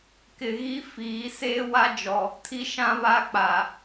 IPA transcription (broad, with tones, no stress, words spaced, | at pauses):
kɪ˨ɣi˦ fiː˨˦ seː˦wa˦d͡ʒɔ˨ | tʰi˦ʃã˦βa˦ k͡paː˨